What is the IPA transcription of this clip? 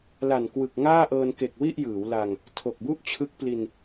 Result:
l a˨˩ n k w ɯ˨˩ k̚ ŋ aː˥˩ ʔ ɤː˧ n k e˨˩ k̚ w i˥˩ ʔ j ɯː˩˦ w l a˧ ŋ | tʰ o˨˩ k̚ b u˥˩ ʔ t͡ɕʰ ɯ˦˥ k̚ p l i˧ n

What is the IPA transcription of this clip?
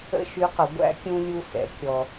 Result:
ə̰˥ ʃ y˧˥ q ə˩˧ ɡʷ æ̰˥ kʲ ũ˧ lʲ u˧ s ɛ̰˩˧ kʲ ɔ˩

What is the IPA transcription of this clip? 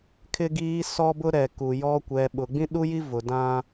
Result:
kʰ ɪ˦ ɡ iː˦ s ɔ˦ b ʊ˦ ɾ ɛ˨ k u˨ j ɔ˦ kʷ ɛ˨ ɓ ʊ˨ ɡ͡b ĩ˦ ɗ u˦ j i˦ v ʊ˨ d ã˦

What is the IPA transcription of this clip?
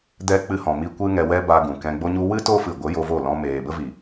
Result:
d ɛ˦ k͡p ɨ˧ h ɔ̃˨ m i˧ kʷ ɨ˦ ŋ ɛ˧ w ɛ˦ b a˧ ɡ ũ˨ k ɛ̃˧ ɡ͡b o˦ ɲ u˧ w ɨ˦ t o˦ f ɨ˨ ɡʷ ə˨˦ j o˧ v o˦˨ l ɔ̃˧ m eː˨ b ə˦ v i˨

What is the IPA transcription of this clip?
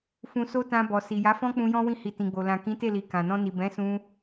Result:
f ũ˧ s o˦ t ã˧ b ɔ˨ s i˨ j a˨˦ f ɔ̃˦ k͡p ũ˧ j ɔ̃˦ w ĩ˦˨ h i˧ t ĩ˨ ɡ͡b o˨ l ã˨ k ĩ˨˦ t e˦˨ l i˨ k ã˨ n ɔ̃˧ n i˨ b ɛ̃˨˦ s ũ˧

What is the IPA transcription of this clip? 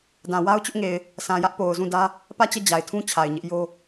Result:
d ã˨ w a˦ ʊ̯ t͡ɕ ʊ˦ ʔ ŋ e˨ ɪ̯ | sʰ ã˨ j ä˦ ʔ p o˨ ʊ̯ z ũ˦˨ d ä˦ | p ä˦˨ t͡ɕ ɛ˦˨ d͡ʑ a˨ ɪ̯ tʰ ũ˦ t͡ɕʰ a˨ ɪ̯ ɲ ɪ˦ ʔ j o˦

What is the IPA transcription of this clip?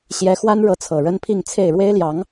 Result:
ɕ j ɛ˧˥ x w a˥ n ɻ ɤ˧˥ t͡sʰ ɤ˨˩ ɻ ə˥ n pʰ i˥˧ ŋ t͡sʰ e˥˩ ɪ̯ ɻ w e˥ ɪ̯ l j ɑ˧˥ ŋ

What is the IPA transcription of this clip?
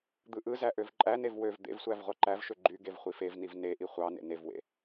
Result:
d̪ ɯ ʔ ɯ z æ ʔ ø v ǃʼ æ n e v w ø v d̪ ḛ v sʷ æ v ʁʷ ɑ ǃ æ v ʃ ø ɡ͡ǃ y ɡ e v χʷ i f e v n i v n e ʔ i χʷ ɑ n ḛ n e v w ḛ

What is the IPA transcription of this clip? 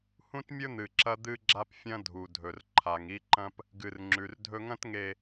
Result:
h ũ˦ t mʲ ɵ˦ n̪ ɨ˨ ǁ ɐ˦ d̪ ɨ˦ ɡ͡ǁ a˦ p fʲ ɐ̃˦ dʱ u˨ dʱ ɵ˨ r ǃʰ a˨ ŋ i˦ ǃ ɐ̃˦ p | ɡ ɨ˨ r ŋ͡ǁ ʉ˨ r dʱ ɵ˦ ŋ ɐ̃˦ t ŋ e˨

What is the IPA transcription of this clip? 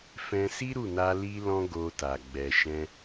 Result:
f ɛ̃˧ s i˦ ɾ u˦˨ n a˧ l i˦ l ɔ̃˦ ɡ o˧ t a˨ ɡ͡b ɛ˨ ʃ ɛ̃˧

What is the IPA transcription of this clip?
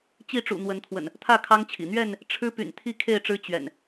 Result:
t͡ɕ i˥˨ ʈ͡ʂ ṵ˨˩ n̪ w ə˨˦ n t̪ʰ w ə̰˨˩ n | t̪ʰ ä˥˨ kʰ ɑ˦ ŋ t͡ɕʰ ḭ˨˩ n̪ ɥ ɛ˥˨ n | ʈ͡ʂʰ ɻ̩˦ p y̰˨˩ n t̪ʰ i˥˨ kʰ e˥˨ ɪ̯ ʈ͡ʂ ɻ̩˦ t͡ɕ ɥ ɛ̰˨˩ n

